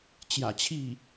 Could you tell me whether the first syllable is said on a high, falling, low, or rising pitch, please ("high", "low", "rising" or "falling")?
low